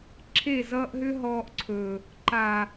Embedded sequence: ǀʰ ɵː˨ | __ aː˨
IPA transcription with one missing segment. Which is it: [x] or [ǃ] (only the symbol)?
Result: ǃ